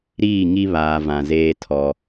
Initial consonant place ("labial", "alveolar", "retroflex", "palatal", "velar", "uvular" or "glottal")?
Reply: alveolar